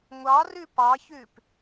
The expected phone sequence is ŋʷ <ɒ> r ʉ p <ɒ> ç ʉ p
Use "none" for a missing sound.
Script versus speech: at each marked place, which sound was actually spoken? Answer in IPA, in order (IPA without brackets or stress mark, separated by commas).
ɑ, ɑ